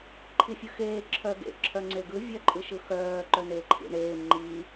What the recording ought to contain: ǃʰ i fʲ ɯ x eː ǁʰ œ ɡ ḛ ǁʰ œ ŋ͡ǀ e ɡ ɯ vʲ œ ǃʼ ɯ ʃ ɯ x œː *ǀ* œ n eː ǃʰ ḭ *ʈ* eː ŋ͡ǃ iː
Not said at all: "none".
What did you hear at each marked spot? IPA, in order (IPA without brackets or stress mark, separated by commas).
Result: ǃ, ɳ